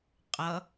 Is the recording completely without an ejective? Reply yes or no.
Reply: no